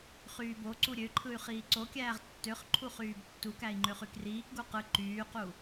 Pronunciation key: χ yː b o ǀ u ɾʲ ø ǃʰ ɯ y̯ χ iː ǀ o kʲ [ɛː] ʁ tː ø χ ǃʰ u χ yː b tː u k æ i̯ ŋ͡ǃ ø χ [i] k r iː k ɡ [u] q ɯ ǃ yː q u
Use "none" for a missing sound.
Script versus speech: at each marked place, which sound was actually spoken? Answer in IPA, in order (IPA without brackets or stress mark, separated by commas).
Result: æː, y, u